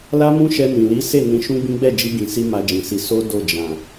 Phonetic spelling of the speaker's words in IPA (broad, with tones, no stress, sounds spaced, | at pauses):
l a˦ m ũ˦ ʃ ɛ˧ n ĩ˨ l i˨˦ s e˦˨ n ĩ˧ ʃ ũ˦ ɡ͡b ĩ˦ ɡ͡b ɛ˦˨ d͡ʒ i˧ ɡ ĩ˨ s i˧ m a˧ d͡ʒ ĩ˨ s i˧ s o˦ d o˦˨ d͡ʒ ã˨